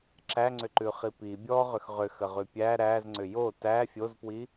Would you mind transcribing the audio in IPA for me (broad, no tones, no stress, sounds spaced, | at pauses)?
ǁ æ ŋ͡ǀ ʏ ǃ ʉ χ i p i bʲ ɔ ʁ ʏ x ʁ ʏ x ə ʁ ʉ pʲ æ ɾ æ z ŋ͡ǀ ʏ j o t æ fʲ o z p w i